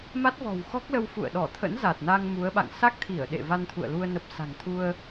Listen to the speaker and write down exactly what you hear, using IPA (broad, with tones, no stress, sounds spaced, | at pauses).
m a˦˥ t̚ v ɔ̤˨˩ w x ɔ˦˥ k̚ l ə˧ w f ṵ˧˨ ə̯ ɗ ɔ˧˩ t̪ʰ ə̰˧˥ n z a˨˩ t̚ n a˧ ŋ m u˨˦ ə̯ ɓ a̰˧˨ ŋ s a˦˥ k̚ t̪ʰ i˧˩ ə̯ ɗ ḛ˧˨ v a˧ n t̪ʰ ṵ˧˨ ə̯ l u˧ ə̯ n ə˨˩ p̚ s a̤˨˩ ŋ t̪ʰ u˧ ə̯